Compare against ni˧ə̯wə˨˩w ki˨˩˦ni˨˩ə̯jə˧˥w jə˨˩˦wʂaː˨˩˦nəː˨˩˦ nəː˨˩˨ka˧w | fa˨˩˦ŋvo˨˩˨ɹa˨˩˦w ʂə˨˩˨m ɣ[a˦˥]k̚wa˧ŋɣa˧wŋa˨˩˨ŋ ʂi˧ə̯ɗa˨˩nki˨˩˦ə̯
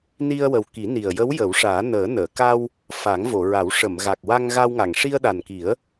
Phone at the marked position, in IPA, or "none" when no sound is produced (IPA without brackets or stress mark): a˨˩